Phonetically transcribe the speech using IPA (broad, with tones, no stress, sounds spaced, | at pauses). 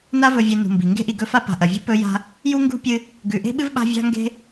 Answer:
n a˦ v ɵ˨ vʲ e˨ n ṳ˨ m b i˩ ŋ ɡ e̤˥ ʔ i˨ ɡ ɵ˦ f a˥ p a̤˨ ʔ ɐ˩ vʲ ṳ˥ p ɵ˥ j a̤˥ | j u˥ ŋ ɡ ṳ˥ pʲ ɨ˦ | ɡ ʉ˨ ʔ e̤˥ ɓ ɨ˥ v ɓ a̤˦ vʲ a̤˥ ŋ ɡ e̤˥